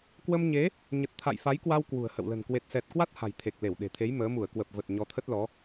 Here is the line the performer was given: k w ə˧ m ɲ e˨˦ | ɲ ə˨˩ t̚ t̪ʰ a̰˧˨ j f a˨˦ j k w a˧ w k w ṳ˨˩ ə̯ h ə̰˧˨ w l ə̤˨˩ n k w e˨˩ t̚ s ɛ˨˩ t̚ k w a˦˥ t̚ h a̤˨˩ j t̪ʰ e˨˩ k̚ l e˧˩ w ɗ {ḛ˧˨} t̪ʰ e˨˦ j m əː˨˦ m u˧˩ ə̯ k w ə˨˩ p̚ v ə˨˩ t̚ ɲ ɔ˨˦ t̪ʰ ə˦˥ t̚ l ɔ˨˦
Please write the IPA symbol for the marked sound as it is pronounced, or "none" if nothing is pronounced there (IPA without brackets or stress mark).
e̤˨˩